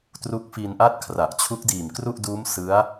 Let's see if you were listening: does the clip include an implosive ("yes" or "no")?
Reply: no